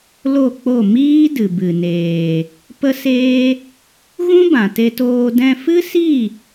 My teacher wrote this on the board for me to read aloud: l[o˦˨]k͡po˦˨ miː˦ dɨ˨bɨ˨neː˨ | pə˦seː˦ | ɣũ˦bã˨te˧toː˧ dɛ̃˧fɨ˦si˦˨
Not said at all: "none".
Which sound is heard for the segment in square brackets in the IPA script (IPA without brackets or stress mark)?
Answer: o˦˨